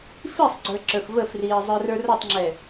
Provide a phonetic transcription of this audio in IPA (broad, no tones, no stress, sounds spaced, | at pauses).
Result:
f i sˤ ɡ͡ǀ ə˞ ǁ ə˞ f v ə f r iː zˤ ə˞ r ə˞ r ɐ tˤ ŋ͡ǁ ɛ